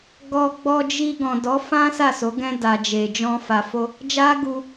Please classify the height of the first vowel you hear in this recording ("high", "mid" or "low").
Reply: mid